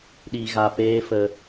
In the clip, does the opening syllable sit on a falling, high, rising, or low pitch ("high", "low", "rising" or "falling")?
low